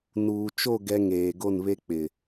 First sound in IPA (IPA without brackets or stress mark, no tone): n